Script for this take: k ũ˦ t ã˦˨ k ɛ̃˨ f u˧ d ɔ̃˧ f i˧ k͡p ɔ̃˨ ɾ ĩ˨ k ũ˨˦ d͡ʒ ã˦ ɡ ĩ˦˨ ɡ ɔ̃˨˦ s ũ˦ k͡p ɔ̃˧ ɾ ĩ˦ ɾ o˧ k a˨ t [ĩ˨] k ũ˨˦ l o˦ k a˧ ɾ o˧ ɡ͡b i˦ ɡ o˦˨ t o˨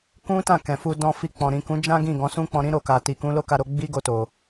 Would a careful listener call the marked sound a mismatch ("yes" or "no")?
yes